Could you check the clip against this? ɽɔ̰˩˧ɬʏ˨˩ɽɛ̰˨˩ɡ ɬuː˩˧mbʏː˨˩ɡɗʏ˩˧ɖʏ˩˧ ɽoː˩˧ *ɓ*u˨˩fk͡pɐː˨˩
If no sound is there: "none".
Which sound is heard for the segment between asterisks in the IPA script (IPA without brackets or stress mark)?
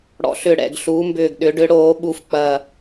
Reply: ɓ